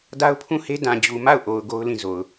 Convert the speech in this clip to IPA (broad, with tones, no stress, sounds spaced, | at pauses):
d a˦ ʊ̯ pʰ ũ˦˨ h e˦ d ã˨ d͡ʑ u˨ m a˦˨ ʊ̯ ʔ o˨ ʊ̯ ɡ o˦ ʊ̯ l ĩ˦˨ z o˨ ʊ̯